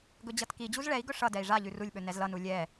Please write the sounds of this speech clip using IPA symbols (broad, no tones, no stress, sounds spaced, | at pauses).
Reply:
ɡ ɵ d͡ʑ ʌ t k i d͡ʑ u z ɭ ɛ i̯ ɡ ɵ ʂ ʌ d ɛ i̯ ʐ a ʎ ʉ r u lʲ ɓ ɵ n ɛ z l ʌ n u lʲ ɛ